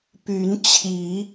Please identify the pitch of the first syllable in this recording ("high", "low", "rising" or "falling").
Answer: rising